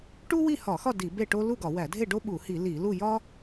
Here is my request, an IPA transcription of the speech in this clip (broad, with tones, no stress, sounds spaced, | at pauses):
ʈ u˥ w i˥˨ h ɒ˧˩˧ x ɒ˥˨ d i˧˩˧ b e˥˨ ʈ o˥ l u˥˨ ɡ ɒ˧˩˧ w æ˧˩˧ dʱ e˥˨ ɖ o˥ ɓ u˧˩˧ h i˧˩˧ l i˧˩˧ l u˥˨ j ɒ˥